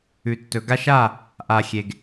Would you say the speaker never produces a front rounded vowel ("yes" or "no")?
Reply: yes